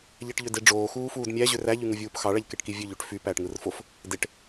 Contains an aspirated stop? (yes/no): no